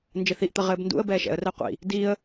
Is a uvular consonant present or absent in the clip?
present